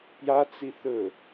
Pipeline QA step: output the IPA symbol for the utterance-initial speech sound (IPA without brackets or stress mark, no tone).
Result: p